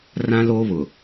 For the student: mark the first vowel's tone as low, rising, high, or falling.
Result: high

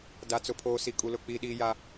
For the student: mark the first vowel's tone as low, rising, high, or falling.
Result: high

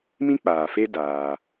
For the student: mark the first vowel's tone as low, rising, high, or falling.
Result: high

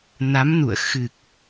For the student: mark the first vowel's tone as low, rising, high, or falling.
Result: rising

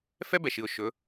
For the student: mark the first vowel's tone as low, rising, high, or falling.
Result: high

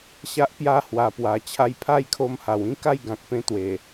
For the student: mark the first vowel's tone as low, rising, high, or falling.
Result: high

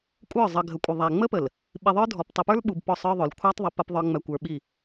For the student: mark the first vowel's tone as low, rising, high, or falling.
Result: falling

